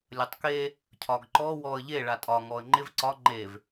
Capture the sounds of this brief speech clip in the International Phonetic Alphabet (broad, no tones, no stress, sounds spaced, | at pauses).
lʲ ɐ tˤ k e | cʰ ɒ ɡ ǃ ɔ w ɔ ə̯ ʎ e ɭ a tʼ ɒ ŋ ɔ ə̯ ŋ͡ǃ ɪ v ǀ ɒ ŋ͡ǃ e v